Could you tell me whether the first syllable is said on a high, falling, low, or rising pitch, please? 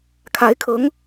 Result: rising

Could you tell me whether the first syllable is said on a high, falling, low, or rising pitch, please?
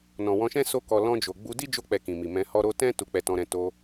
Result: low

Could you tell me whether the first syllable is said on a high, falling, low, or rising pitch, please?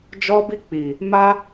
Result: high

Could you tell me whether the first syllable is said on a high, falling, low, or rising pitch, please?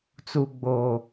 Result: low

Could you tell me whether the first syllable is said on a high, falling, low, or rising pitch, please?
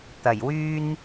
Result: low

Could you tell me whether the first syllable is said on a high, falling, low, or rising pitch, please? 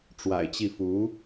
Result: low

